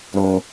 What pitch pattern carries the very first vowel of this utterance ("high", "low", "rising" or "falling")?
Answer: low